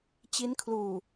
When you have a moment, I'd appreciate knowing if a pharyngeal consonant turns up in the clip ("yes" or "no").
no